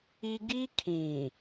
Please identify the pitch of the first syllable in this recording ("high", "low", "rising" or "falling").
high